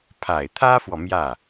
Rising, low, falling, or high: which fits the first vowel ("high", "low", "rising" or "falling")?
low